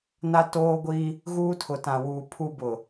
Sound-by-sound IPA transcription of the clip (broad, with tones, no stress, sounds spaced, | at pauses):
n a˦ t oː˦ ɡʷ i˦ | ɣ uː˦ tʰ ʊ˨ t ã˨ w uː˨ pʰ u˦ b ʊ˨